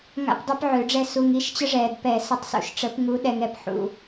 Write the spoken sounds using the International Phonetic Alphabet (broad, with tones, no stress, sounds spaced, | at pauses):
ŋ a̰˥ p dˤ ø˥ p ʕ ø˨˩˦ ɖ͡ʐ ɛ˥˩ s u˨ ŋ i˧˥˧ ʃ t͡ɕ ə˥ ʐ ɛː˨ d p ɛ˨˩˦ s ə˨˦ tˤ s ṵ˨ ʃ ʈ͡ʂ ə˨˩˦ p ŋ u˨˦ ɗ ɛ˨ ŋ ɛ˨ p ħ ṵ˨